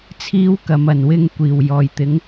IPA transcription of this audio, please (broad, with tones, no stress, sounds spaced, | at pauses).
t͡sʰ iː˥ w k ɐ˨˥ m ɐ˨ n w ɪ˧ ŋ kʷ iː˨˩ w j ɔː˨˩ j t̪ ɪ˨˧ ŋ